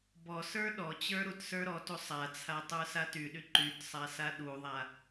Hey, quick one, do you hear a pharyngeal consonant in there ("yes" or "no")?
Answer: no